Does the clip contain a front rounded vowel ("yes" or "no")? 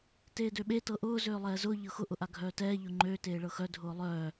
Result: yes